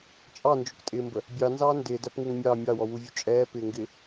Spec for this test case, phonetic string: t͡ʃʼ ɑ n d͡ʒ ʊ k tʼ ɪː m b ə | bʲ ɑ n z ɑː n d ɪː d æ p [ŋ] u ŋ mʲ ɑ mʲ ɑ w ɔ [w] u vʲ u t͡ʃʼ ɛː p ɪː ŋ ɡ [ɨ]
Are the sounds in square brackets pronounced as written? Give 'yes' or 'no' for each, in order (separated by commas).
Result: yes, yes, no